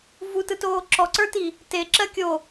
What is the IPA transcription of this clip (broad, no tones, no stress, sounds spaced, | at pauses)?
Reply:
v u t ɯ t oː ǁ ɔ ǀ ə˞ t i | t e ǁ ɜ kʲ o